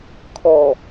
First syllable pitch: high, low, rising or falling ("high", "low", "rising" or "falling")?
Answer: low